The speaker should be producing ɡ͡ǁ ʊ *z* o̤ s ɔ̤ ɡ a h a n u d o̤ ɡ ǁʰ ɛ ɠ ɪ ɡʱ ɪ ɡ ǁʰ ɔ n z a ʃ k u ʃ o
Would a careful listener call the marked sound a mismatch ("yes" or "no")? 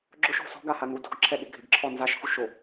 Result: yes